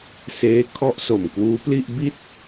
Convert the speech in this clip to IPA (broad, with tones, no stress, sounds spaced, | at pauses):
s eː˦˥ kʰ ɔ˥˩ ʔ s o˨˩ m k w uː˦˥ p l i˥˩ ʔ b i˥˩ t̚